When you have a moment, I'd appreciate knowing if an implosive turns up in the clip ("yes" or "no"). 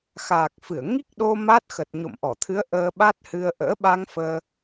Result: yes